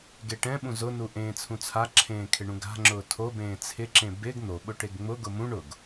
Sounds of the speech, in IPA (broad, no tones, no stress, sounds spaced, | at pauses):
ɡ e ʈ ɛ̃ ɓ ũ z ʊ n u ʔ ẽː t͡sʰ ũ t͡sʰ a ǁʰ ẽː kʰ ɪ ɳ ũ ɡ a̤ ŋ͡ǁ ʊː tʰ o b ẽː t͡sʰ ɪ ǁ ẽ b ɪ ɡ n̪ o ɓ ʊ ʈ e ɡ ŋ͡m ʊ ɡ ʊ m ũ ɳ ʊ ɡ